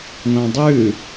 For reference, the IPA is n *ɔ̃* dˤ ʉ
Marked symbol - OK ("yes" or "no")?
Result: yes